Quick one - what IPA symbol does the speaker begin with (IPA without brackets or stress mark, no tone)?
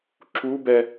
ǁ